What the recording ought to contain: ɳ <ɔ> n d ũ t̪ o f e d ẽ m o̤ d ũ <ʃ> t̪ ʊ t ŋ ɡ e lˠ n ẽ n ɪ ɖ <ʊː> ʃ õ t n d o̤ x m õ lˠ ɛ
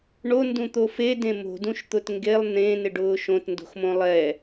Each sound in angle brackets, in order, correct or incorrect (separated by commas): incorrect, correct, correct